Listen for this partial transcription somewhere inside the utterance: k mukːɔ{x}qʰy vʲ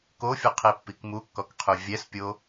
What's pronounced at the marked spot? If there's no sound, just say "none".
k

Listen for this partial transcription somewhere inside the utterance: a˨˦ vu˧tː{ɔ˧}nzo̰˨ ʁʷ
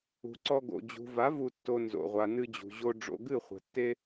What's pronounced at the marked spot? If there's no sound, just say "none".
o˧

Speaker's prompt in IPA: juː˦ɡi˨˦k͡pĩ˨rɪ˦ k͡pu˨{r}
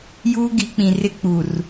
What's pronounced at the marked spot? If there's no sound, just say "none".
r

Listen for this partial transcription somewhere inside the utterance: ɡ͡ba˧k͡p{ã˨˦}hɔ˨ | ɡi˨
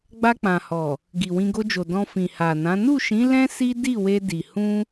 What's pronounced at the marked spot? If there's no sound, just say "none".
ã˨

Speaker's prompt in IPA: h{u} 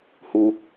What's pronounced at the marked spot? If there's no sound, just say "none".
u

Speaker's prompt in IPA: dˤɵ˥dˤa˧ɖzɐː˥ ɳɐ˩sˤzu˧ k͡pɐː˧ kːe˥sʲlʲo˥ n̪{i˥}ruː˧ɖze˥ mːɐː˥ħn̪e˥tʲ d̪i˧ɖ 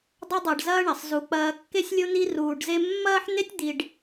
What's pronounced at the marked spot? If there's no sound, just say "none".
i˥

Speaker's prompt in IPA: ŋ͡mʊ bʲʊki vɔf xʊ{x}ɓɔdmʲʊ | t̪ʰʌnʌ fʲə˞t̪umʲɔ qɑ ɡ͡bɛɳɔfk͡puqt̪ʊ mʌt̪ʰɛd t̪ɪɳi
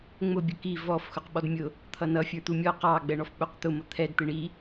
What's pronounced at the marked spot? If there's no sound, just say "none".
q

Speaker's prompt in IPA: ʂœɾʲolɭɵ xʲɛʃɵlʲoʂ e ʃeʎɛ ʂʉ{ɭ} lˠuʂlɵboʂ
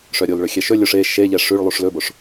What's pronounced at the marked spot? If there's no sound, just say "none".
ɭ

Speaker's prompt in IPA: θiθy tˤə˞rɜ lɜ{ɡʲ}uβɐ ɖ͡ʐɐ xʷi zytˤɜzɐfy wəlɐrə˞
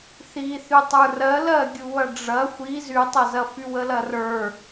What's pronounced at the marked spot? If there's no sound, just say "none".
ɡʲ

